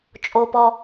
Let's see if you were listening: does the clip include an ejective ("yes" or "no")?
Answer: yes